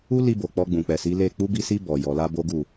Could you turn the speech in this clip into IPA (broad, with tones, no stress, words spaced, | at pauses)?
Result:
u˦ li˧bo˨ k͡pɔ˧ɡ͡bũ˨k͡pɛ˨si˨˦ le˦˨ k͡pu˧bi˧si˧ bɔ˨ jɔ˨la˧ bo˦ɡu˦˨